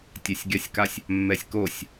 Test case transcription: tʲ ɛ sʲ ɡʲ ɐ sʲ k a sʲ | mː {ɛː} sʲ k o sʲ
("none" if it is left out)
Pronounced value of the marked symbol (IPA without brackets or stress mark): ɛ